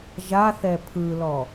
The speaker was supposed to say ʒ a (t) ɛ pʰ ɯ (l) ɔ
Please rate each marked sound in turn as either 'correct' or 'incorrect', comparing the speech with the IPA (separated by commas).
incorrect, correct